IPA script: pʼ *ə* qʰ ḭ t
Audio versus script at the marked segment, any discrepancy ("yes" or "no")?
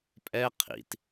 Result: yes